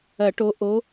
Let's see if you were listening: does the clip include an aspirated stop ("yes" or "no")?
no